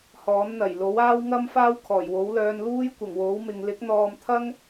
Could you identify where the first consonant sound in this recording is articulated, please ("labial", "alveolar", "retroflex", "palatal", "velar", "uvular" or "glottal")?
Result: glottal